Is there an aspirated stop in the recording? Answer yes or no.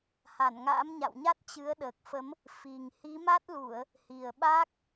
no